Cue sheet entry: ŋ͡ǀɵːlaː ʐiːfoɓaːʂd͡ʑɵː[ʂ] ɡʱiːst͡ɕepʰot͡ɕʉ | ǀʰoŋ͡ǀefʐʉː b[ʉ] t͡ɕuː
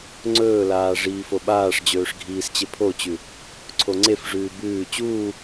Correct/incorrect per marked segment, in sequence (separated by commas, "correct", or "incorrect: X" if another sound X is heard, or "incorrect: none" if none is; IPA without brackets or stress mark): correct, incorrect: ʉː